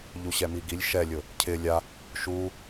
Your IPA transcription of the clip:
ʎ u ɕ ɛ m i ɡ i lʲ ʃ ɛ lʲ ʊ | cʰ ɪ lʲ a | ʃ u

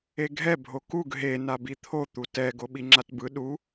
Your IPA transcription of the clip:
e ɡʱ ɛ bʱ o k u ɡ ɦ e n a b i t̪ʰ o t̪ u t ɛ ɡ o ɓ i ŋ͡ǁ a t b ɯ ɗ u

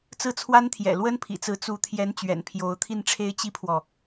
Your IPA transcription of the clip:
t͡s ɹ̩˥˩ t͡sʰ w a˥ n t̪ʰ j ɛ̰˨˩ l w ə˥ n pʰ ḭ˨˩ t͡s ɹ̩˧˥ t͡s u˧˥ t̪ʰ j ɛ˧˥ n t͡ɕ ɥ ɛ̰˨˩ n pʰ j o˧˥ ʊ̯ t̪ʰ i˥˩ n ʈ͡ʂʰ e˥ ɪ̯ t͡ɕ i˥ pʰ w ɔ˨

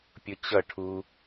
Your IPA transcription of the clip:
pʲ ʊ t͡ɕ ʌ ʈʰ u

